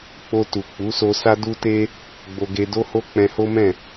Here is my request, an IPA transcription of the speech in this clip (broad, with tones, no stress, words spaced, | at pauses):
k͡po˧tu˨k͡pu˨˦so˧ sa˦du˦te˦ | ɡ͡bo˧ɡe˧do˦ho˦ k͡pɛ̃˧ho˦mɛ̃˦˨